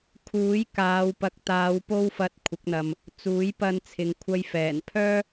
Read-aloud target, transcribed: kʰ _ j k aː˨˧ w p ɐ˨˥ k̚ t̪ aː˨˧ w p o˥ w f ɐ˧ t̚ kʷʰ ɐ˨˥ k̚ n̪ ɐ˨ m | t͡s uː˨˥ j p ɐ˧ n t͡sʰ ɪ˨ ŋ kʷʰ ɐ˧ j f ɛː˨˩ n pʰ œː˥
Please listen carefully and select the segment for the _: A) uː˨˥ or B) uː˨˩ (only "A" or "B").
A